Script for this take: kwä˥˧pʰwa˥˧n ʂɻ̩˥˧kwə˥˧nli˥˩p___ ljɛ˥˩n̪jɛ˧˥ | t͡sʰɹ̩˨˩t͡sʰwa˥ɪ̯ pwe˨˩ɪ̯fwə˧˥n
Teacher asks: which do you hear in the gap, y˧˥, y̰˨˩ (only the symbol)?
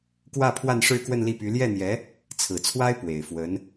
y˧˥